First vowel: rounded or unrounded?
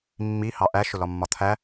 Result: unrounded